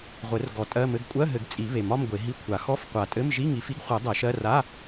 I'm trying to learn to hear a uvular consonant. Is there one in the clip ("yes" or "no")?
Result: yes